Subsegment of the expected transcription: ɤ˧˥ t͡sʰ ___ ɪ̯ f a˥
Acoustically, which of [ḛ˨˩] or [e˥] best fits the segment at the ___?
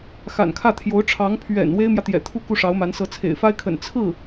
ḛ˨˩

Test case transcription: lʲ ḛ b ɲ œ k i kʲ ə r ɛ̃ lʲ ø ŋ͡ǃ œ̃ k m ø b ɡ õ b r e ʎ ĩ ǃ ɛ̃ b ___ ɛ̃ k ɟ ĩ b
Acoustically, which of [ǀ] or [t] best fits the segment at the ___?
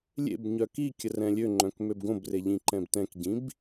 t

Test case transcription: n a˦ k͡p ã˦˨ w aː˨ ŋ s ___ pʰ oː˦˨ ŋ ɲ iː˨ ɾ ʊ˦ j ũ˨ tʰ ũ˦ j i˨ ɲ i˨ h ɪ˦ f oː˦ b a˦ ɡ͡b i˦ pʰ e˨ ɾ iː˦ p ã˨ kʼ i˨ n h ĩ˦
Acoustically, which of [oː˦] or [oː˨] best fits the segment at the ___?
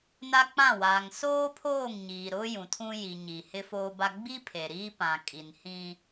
oː˦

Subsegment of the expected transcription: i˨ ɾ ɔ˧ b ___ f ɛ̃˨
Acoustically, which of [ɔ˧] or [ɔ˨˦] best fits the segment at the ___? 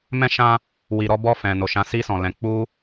ɔ˧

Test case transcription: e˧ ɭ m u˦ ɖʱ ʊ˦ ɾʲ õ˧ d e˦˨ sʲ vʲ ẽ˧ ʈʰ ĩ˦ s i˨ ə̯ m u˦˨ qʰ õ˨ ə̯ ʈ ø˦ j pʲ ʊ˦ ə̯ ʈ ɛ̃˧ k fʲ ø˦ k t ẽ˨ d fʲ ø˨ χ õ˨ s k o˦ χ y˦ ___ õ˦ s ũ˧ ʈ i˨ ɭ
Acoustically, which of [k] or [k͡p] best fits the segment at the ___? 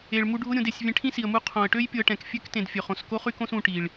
k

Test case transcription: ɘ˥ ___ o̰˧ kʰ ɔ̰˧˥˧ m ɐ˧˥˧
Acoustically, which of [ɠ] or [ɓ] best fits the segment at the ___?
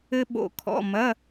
ɓ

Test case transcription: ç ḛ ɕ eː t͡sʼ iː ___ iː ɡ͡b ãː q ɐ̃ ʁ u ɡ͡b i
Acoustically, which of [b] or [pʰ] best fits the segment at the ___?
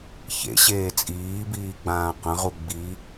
b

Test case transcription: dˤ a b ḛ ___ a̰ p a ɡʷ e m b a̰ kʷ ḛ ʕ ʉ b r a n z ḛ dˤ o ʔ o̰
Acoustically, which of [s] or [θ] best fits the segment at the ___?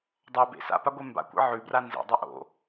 s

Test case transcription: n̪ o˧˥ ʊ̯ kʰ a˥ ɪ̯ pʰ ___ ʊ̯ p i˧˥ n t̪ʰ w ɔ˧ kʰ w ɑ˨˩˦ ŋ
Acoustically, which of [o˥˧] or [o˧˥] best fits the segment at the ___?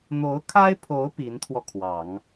o˧˥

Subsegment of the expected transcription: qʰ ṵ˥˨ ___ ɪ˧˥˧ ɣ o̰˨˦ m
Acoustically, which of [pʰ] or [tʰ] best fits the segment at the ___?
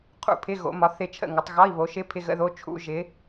pʰ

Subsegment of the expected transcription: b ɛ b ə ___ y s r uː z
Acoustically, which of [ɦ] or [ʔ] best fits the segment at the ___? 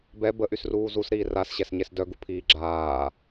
ʔ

